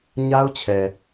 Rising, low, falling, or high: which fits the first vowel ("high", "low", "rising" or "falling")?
high